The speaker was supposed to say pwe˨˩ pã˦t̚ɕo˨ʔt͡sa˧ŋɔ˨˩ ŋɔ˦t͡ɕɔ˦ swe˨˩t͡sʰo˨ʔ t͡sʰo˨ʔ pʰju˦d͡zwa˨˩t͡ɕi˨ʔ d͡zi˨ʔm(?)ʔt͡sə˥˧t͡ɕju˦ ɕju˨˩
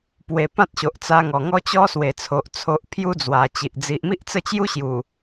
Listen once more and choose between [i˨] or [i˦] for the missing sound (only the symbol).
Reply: i˦